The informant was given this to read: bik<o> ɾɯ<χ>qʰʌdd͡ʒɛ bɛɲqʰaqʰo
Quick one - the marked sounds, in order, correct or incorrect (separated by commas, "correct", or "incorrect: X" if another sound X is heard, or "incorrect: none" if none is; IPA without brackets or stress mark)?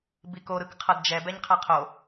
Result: correct, incorrect: k